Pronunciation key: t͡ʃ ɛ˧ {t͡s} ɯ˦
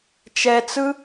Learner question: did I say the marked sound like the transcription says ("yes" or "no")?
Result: yes